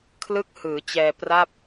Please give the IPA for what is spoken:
kʰlɯ˥˩k̚ hɯː˩˦t͡ɕɛː˧pra˥˩p̚

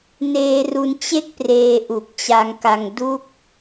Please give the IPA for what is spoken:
neː˧ru˧nt͡ɕe˦˥k̚ preː˧ʔu˨˩k̚t͡ɕa˧ŋka˧ŋ du˦˥k̚

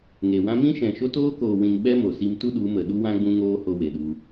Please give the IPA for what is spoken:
ŋe˨wã˦ mĩ˦ʃɛ̃˨ʃo˦ toː˦koː˨wĩ˨n ɓɛ˦mo˨si˧mtu˦ ɗu˨˦mə˨ ɗu˧wã˧ ɡ͡bũ˦ŋoː˦ho˧ we˨ɗu˧

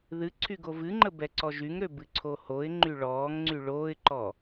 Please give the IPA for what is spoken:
ðɨ ǀʰyɡovɨŋ͡ǃə bɛǀɔʒyŋɾø bɨǀʰohoɪ̯ŋ͡ǃy ɭɔːŋŋ͡ǀy ɭoːɪ̯ǃɔ

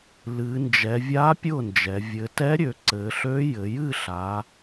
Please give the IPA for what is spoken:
lɨ˩˧nd͡ʒɛ˩˧ vʲa˧˥ pʲʊ˥˩nd͡ʒɛ˩˧ vʲɘ˩˧tɛ˧˥ɾʲø˩˧ ǀɘ˩˧ɬø˧˥ jɘ˩˧jɨ˥˩ɬa˩˧

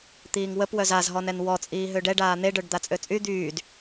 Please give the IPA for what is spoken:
t̪iːŋwəp wœzazɦɔnɛn wɔt͡sʼiː ɦøɖɛɖ aːn̪eɖœɖ d̪at͡sʼøt͡sʼy d̪yːd

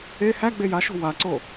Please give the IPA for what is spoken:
e hæ ɡ͡bejaʃo̤ waǀo

